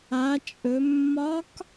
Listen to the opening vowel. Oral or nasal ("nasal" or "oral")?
oral